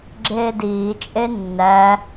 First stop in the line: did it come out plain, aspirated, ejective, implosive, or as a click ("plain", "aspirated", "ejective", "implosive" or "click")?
click